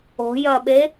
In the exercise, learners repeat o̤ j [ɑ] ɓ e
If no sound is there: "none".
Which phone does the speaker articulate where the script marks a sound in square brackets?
ɐ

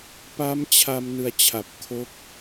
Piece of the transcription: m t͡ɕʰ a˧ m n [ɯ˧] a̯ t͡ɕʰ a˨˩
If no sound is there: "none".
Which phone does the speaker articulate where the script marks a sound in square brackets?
ɯ˧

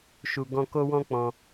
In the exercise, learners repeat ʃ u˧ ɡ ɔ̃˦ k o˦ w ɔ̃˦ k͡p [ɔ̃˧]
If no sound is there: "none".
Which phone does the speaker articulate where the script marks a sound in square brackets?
ɔ̃˧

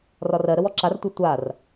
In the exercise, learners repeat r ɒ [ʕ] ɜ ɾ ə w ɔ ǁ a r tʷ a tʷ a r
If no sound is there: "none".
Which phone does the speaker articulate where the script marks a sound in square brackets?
r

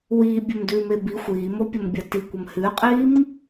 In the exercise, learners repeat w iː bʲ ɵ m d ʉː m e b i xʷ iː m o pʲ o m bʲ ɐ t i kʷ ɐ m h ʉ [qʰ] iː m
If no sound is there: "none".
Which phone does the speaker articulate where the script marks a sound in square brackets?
qʼ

